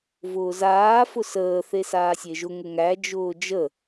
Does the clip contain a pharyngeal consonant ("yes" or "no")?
no